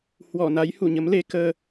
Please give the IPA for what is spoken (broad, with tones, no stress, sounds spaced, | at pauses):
h w ɔ˧˩ n a˨˦ j h u˧˩ ɲ ə˨˦ m l e˨˦ k əː˧